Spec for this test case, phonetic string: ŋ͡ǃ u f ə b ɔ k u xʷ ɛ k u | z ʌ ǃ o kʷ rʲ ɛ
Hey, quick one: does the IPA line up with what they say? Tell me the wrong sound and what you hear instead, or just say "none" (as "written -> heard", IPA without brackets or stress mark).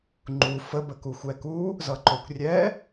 ɔ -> ə